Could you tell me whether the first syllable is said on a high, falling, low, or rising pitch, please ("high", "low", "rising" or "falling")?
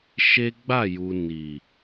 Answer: high